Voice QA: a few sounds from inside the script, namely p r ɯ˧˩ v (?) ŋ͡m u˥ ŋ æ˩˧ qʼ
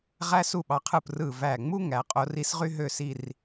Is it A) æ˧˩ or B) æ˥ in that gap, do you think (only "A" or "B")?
A